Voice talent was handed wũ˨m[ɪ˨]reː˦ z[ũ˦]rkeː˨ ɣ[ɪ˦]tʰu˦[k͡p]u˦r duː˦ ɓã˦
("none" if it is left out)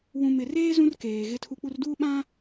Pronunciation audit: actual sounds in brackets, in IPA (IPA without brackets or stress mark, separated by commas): ɪ˨, ũ˦, ɪ˦, k͡p